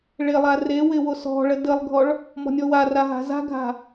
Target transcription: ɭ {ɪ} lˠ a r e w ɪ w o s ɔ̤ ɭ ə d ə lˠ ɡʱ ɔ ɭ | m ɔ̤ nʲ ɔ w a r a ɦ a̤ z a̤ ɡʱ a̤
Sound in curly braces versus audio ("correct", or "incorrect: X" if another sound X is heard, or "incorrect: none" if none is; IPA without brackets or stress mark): correct